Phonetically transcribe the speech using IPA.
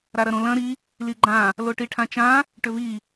ɾaɾɐɾõlɐ̃ ɾi | liɡ͡ǃã | loʈiʈʰãt͡ʃã | ʈʏvi

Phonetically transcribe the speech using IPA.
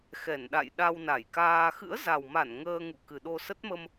xɛ˧˩nɗa̰˧˨j ɗa˧wna˧˩jkaː˧ xɨ̰˧˥ə̯za˨˩wma˧˩n ŋəː˧ŋṵ˧˨ kɨ˨˩ɗo˧ sə˦˥t̚mə˧m

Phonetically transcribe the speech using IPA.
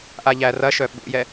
ʔaʎærɐʃœ ɓṵjɛ

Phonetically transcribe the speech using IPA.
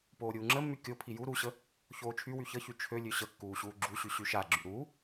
poːɾʲuːŋ͡ǁəmːy kʲopʰi ju ɾuɕə | çoːt͡ʃʰywy çəçy t͡ʃʰølʲø ɕəkːuː ɕuːɡ͡ǁuɕy ɕyʃaɡ͡ǁy ɾuː

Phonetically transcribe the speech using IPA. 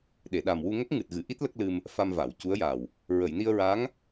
ɗe˨˩˨ɗa˨˩mwu˧ŋə˦˥k̚ ŋɨ˨˩t̚ɣɨ˨˩˨ʔi˦˥t̚ lə˦˥k̚lɨ˧m | fa˧mva˨˩˨wcu˧˥ə̯ja˨˩w | ɹə˨˩˨jni˧ə̯ɹa˧˥ŋ

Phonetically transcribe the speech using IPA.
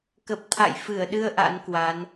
kə˨˩p̚t̪ʰa̰˧˨jfɨ˧˩ə̯ɗɨ˧ə̯ ʔa̰˧˥nkwa˨˦n

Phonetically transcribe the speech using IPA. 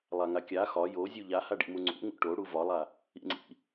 lˠaŋakʲa xɒ jozʲu ʎahaɖḭmu ŋ͡ǀṵ ŋṵʈo ɽuvɒlˠa | ḭŋ͡ǀḭ

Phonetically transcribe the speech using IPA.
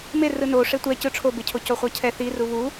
merɯ no ʂetʷɛ cɯ ʈ͡ʂʰobecʰo coχʷʌcʰɛ θiru βu

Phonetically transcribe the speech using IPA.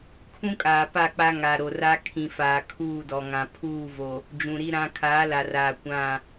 kʰũ˦kʼaː˨ pa˦˨k͡pa˦ ŋa˨ɾo˨ra˦ kʰĩ˨ faː˨kʰuː˦˨dɔ˨ŋã˨ pʰuː˦˨vo˨ | d͡ʒũ˨ɾi˦ɾã˦ kʰaː˨˦la˨raː˨ kʷã˦˨

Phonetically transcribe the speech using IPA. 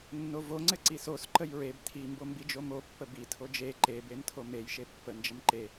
nːovoŋ͡ǀɘ ǀisos ǃəjɹeb tʰimbombi d͡ʒomopːə bi tʰod͡ʒe ǃebem tʰomej ʃepːə nd͡ʒəmǃe

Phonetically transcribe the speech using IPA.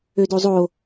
ødozˤo

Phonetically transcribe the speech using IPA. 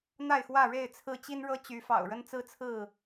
n̪a˥˨ɪ̯xwä˥˨ ɻe˥˨ɪ̯t͡sʰɹ̩˥˨ t͡ɕi˦nɻɤ˦t͡ɕy˨˦fɑ̰˨˩ʊ̯ ɻə˦nt͡sɹ̩˦t͡sʰɹ̩˥˨

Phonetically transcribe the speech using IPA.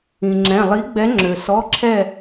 ĩ˩ŋ͡ǁɛ̃˩˧˩ lˠi˨˥ɡ͡bɛ˨˥ŋ͡ǁø˩ sɔ˩˧˩ǁʰɛ˧˩

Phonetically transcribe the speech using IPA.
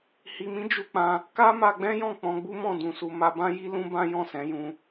hi˨mĩ˨˦ d͡ʒu˧k͡pã˧ | ka˦ma˧ɡ͡bɛ̃˦jɔ̃˦˨ k͡pɔ̃˧ɡ͡bu˦mɔ̃˦˨ dũ˨su˨ ma˧bã˦ji˦ lũ˦bã˦jɔ̃˦˨ sɛ̃˨˦jũ˧

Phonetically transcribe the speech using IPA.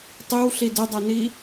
tˤiwɬi dɘdˤani

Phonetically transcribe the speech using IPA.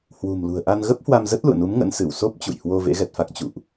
hwṳ˨˩m lṳ˨˩ə̯ʔa˧n ɣə˦˥p̚hwa˧m zə˦˥t̚lṵ˧˨ə̯nu˨˦m ŋə̰˧˥nsɨ˧˩wso˦˥p̚ t͡ɕṵ˧˨jhwo˧ vḛ˧˥ɣɛ˨˩t̚fa˦˥k̚ t͡ɕṵ˧˨ʔ

